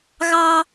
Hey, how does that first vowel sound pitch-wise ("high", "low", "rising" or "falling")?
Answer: high